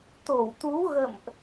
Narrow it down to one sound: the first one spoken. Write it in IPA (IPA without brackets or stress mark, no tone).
t̪